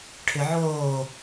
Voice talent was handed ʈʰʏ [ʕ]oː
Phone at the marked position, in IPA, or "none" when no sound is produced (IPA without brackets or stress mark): ʕ